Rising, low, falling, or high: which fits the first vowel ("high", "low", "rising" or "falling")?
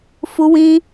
high